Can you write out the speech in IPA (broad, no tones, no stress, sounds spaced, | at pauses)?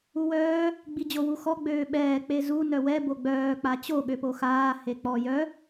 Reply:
u w œː | ɡ͡b i d͡ʑ o w u x ɔ ɡ͡b øː ɓ ɛː k͡p e z u n œ w ɛ b o ɡ͡b œː k͡p a t͡ɕ o ɠ ø p o x aː h e k͡p ɔ j œ